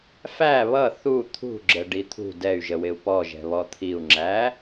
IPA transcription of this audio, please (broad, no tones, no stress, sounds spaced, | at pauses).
f æ β ʌ θ u t̪ʰ ṳ ɡ͡ǁ ə ɖ i t̪ʰ ṳ d ɛ y̯ ʒ ə w ɪ u̯ p ɔ ʒ ɛ̤ β ɔ t̪ʰ i u̯ ŋ͡ǁ æ